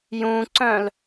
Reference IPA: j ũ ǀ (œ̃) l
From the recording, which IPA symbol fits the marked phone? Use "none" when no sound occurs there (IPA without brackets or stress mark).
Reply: œ̃